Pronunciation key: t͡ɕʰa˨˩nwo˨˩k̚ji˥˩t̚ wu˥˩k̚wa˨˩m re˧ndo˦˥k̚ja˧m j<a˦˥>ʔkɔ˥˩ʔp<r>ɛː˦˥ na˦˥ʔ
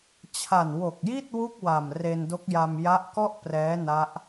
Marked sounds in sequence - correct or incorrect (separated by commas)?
correct, correct